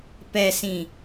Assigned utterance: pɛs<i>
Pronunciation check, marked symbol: incorrect: ĩ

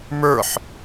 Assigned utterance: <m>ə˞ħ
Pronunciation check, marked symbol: correct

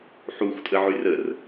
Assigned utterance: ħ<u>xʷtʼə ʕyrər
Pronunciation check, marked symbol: correct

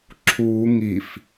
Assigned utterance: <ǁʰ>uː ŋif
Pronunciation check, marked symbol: correct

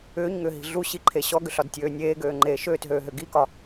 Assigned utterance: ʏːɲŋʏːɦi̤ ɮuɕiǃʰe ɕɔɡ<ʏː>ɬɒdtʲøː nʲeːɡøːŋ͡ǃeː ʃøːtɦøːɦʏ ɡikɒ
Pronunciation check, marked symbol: incorrect: ʏ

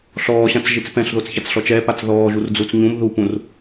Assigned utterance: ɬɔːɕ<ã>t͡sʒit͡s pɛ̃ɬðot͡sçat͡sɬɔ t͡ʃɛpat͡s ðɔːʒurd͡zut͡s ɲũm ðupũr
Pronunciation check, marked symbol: correct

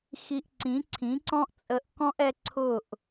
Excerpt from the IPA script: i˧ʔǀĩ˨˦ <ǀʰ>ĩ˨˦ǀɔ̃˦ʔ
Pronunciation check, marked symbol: correct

